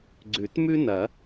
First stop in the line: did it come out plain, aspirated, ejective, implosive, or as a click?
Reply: click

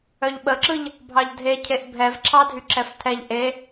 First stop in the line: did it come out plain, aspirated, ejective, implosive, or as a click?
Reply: implosive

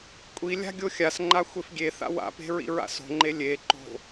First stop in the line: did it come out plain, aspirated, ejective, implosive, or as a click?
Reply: ejective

